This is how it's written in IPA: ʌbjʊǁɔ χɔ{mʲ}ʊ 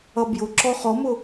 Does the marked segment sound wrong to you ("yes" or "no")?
yes